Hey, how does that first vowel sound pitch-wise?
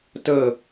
falling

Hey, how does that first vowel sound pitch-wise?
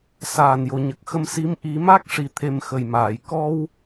low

